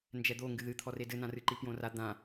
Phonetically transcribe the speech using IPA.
nd͡ʒɛd̪o ŋɡɨðɨt̪ʰɔre dɘnãrɨǃi pjõra d̪ã

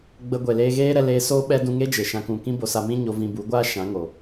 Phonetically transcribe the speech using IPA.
ɡ͡bə˧ ɡʷe˨leː˧ɣeː˦ɾɛ˧ leː˧soː˦ ɓɛ˦ dũ˧ŋe˦d͡ʒe˨ ʃã˧kũ˨ kĩ˦bo˧sa˧ mĩ˦ɲo˧ vĩ˧ bu˨˦ɡʷaː˦ ʃã˨˦ŋo˨

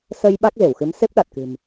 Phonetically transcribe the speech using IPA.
sə˧j ɓa˦˥k̚ze˧˩wxɨ˨˦m se˦˥p̚ɗa˨˩t̚kɨ̤˨˩m

